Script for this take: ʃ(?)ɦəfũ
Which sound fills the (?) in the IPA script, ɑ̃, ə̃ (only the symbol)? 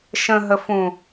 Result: ə̃